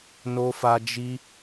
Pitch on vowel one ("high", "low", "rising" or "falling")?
high